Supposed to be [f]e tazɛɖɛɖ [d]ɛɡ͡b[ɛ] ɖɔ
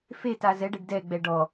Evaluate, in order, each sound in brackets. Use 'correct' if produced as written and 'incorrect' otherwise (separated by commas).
correct, correct, correct